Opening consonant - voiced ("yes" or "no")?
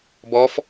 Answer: yes